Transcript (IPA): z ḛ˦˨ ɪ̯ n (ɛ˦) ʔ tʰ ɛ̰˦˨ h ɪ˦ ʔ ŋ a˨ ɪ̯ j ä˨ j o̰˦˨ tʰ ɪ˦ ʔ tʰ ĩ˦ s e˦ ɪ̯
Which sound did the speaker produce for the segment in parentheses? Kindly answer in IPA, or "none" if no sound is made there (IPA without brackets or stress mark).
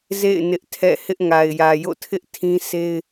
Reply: ɪ˦